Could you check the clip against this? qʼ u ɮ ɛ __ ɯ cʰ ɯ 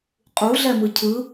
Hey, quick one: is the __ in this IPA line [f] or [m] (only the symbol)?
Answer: m